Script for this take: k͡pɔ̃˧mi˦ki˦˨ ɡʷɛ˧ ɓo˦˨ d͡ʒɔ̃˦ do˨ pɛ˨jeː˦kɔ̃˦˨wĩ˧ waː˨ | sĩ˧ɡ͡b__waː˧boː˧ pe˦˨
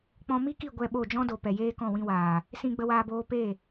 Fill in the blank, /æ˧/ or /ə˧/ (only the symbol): ə˧